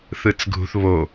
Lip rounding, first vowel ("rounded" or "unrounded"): unrounded